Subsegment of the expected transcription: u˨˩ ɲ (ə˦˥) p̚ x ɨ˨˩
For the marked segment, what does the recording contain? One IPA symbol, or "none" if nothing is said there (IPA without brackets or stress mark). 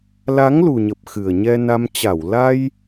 ə˨˩